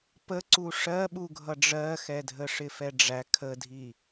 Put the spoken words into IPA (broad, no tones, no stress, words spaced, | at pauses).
pəǀu ʂɜɓuɡʱʌ ɖ͡ʐɜxɛdʱə ʂɪfɛɖ͡ʐæ kʰədʱi